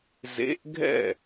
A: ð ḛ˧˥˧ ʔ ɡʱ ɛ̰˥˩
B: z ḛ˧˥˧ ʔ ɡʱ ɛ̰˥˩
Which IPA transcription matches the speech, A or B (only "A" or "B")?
B